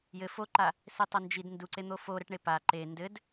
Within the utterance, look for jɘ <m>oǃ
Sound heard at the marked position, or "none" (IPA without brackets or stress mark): f